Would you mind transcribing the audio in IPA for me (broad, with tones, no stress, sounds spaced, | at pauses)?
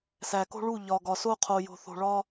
s æ˨ k o̤˦ ɭ u˦˨ ʎ ɒ˨ ɡ ɒ˨ s o˦ qʰ o˨ j o̤˨ θ o̤˨ ɭ ɒ˦